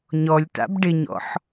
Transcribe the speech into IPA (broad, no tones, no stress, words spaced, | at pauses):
ɲɔlʲta̰b ɖɪɲɔ̰ħ